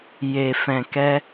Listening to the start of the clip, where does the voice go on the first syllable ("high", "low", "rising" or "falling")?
low